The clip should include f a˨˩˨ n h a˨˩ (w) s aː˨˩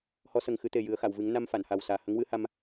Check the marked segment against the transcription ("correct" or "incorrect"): correct